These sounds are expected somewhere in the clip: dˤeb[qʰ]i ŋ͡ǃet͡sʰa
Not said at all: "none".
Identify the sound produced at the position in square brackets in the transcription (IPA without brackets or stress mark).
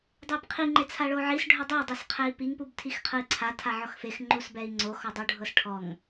qʰ